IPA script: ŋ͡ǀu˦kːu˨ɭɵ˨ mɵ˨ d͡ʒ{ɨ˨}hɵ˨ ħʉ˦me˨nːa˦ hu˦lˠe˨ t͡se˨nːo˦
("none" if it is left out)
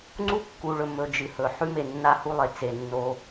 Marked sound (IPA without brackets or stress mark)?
ɨ˨